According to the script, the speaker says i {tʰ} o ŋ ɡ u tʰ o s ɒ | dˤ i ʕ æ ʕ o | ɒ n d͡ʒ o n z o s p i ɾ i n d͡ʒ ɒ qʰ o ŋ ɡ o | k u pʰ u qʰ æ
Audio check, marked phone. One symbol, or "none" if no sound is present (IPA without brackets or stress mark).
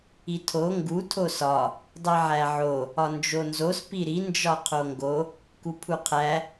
tʰ